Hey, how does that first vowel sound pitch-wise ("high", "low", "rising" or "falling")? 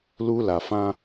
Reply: high